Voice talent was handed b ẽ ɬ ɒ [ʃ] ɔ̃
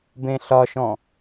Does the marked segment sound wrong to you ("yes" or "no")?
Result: no